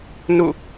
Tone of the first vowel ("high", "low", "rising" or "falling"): falling